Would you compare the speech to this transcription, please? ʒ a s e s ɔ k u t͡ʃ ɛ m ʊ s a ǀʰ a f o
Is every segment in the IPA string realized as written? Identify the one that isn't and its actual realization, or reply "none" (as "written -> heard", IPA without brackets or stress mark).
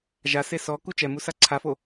ʊ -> u